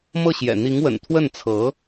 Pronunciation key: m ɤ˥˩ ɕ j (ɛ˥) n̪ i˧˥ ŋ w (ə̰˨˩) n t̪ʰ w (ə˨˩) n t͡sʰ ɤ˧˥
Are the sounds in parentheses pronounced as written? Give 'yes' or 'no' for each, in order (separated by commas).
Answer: no, yes, no